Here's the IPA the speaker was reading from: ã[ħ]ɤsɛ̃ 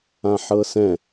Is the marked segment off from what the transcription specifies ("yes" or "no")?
no